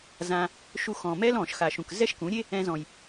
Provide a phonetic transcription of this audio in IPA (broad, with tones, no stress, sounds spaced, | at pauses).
z ã˧ | ʃ u˧ x ɔ̃˨ m ɛ˦ l ɔ̃˨ ʃ x a˨ ʃ ũ˨ k z ɛ˦ ʃ k ũ˨˦ ɾʲ e˦ | ɛ̃˧ z ɔ̃˨ j